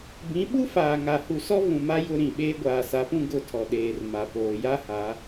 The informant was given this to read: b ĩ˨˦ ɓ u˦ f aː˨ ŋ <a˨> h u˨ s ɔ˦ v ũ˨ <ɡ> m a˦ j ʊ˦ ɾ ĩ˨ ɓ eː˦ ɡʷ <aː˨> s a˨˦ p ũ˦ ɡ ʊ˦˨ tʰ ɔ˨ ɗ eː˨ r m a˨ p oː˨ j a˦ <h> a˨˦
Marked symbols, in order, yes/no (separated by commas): yes, no, yes, yes